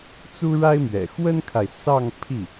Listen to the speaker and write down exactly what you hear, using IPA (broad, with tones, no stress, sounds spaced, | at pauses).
t͡s u˥ ɻ a˥ ɪ̯ m ɥ ɛ̰˨˩ x w ə˥ n kʰ a˨ ɪ̯ s ɑ˥˧ ŋ pʰ i˥˩